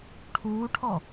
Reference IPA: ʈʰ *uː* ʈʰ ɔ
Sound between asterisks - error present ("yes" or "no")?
no